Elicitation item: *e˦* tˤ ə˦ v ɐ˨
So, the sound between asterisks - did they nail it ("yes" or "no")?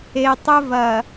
no